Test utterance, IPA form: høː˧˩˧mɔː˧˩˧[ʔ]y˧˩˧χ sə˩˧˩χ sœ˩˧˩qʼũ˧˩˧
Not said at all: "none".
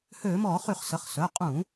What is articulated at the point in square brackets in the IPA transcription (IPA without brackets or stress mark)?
χ